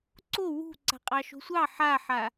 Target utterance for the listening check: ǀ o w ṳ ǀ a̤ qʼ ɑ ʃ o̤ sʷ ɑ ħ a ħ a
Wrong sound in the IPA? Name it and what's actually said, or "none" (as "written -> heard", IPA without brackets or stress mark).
none